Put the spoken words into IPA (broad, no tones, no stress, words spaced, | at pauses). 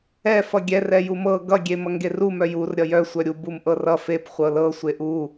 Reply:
ɛ fʌɡʲɛ rɛjumɤ ɡʌ ɡʲemʌŋɡeru mœjur ɾʲʌjœ sʷœɾʲu bumʔɤrʌ fep χʷɤlɤ sʷeʔu